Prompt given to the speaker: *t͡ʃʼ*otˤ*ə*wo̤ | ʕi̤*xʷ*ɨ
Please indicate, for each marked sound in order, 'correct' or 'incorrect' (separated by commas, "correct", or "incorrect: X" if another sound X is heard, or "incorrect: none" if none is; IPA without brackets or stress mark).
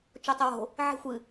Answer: incorrect: t͡ʃ, correct, correct